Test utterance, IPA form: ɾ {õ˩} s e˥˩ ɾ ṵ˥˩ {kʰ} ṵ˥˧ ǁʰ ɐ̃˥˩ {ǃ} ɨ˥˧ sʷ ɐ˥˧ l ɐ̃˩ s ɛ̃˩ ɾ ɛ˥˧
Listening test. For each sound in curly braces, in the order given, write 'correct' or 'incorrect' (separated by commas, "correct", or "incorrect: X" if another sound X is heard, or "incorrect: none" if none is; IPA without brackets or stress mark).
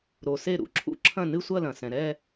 incorrect: o˩, incorrect: ǁʰ, incorrect: n